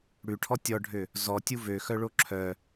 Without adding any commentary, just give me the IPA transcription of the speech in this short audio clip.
ɽ ʉ ʈʰ ɔ tʲ ɔ ɖʱ ø | z ɔ tʲ u v ø x œ ɭ o ǁʰ œ

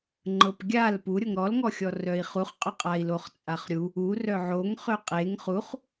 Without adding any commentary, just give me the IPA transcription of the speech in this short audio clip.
ŋ͡ǃ ɤ p ɡʲ a l p u ɾʲ ɤ ŋ ɾ ɔ l ŋ ɔ xʲ ɔ r œ i̯ χ u χ qʼ ɵ qʼ a i̯ l o χ t͡sʼ a χ ɾʲ u | u r œ ʕ o ŋ χ ø qʼ e ŋ χ u χ

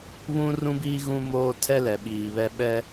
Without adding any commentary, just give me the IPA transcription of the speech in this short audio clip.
β ũ˦ r ũ˦ b iː˦ ɣ ũ˦ m oː˦ tʰ ɛ˦ l ɛ˨ ɓ iː˨ β ɛ˦ ɓ ɛ˦

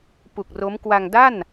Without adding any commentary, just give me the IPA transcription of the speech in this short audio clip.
p u˨˩ k̚ r o˦˥ m k w a˧ ŋ d a˥˩ n

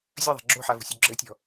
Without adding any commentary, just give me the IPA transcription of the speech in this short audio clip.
zʲ ɐ ðˤ a̤ ɡ͡ǁ o̤ ħ a v ṳ sʲ u ɡ͡ǁ ɘ tʲ ɔ̤

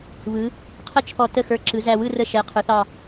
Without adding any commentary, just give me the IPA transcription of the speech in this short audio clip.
β ɯ˩˧ | qʰ ə˥˨ t͡ʃʰ ɔ˧˩ t ə˥˨ x ə˞˧˩ ǁ ɯ˩˧ z æ˧˩ w ɯ˥˨ r ə˧˩ ʃ ɛ˩˧ qʰ ə˞˩˧ θ ɑ˧˩

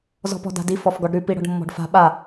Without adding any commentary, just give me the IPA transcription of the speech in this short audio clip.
z ɔ̤ p ɔ̤ d a̤ d i f ɔ f ɡ ɔ ɖ ɾ ʉ p i ɽ ɔ̤ ɖ mː ɔ̤ ɖ f a̤ ɓ a

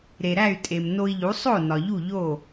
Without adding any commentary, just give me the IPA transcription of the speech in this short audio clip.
ɾ e˩ ɾ æ˥˩ y̯ tʼ e˩ m n o˧ i̯ ʎ u˩˥ sˤ o˥˩ n ɒ˩ ʎ u˥˩ ʎ o˥˩

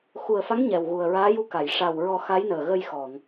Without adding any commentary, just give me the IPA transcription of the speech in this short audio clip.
x u˨˩ ə̯ f a˧˥ ŋ ɲ ɛ˨˩ w ɣ u˨˩ ə̯ ɹ aː˧˥ j u˧ k a˨˩˨ j ʂ a˨˩ w ɹ ɔ˨˩˦ x a˧˥ j n əː˨˩ ɣ ə˧ j x ɔ˨˩˨ ŋ

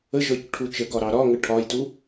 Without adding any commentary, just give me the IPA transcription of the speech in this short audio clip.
ə ʒ ɔ c ʈʰ u t͡ʃ ə ɡ ɒ ɾ ɑ ɾ ɒ ŋ ə ʈʰ ɒ j t u

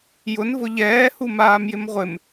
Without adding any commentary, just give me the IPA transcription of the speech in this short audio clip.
j ʊ n v ʊ ʎ ɛː h u m aː m j ɪ m ʁʷ ɪ m

